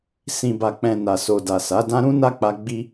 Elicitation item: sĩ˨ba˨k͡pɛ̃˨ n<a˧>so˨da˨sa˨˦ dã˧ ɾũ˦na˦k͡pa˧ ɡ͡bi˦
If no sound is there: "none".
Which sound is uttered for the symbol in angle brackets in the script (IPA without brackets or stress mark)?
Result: a˨